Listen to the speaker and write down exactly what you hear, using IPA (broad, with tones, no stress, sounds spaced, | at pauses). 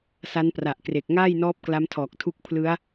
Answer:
s a˦˥ n p r a˨˩ ʔ k r e˨˩ k̚ ŋ aː˥˩ j n ɔː˦˥ p̚ k l a˦˥ m tʰ ɔː˨˩ k̚ tʰ u˦˥ k̚ pʰ l ɯ˦˥ a̯